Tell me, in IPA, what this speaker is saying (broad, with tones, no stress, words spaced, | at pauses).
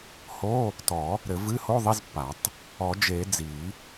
ho˧˥˧ | tɔ˨˩˦ | ɾɘ˨˩˦vɨ˧˥˧ho˧˥˧ ðˤi˧˥˧zpːa˨˩˦tˤ | ɔ˨˩˦d͡ʒe˨˩˦ d͡zi˨˩˦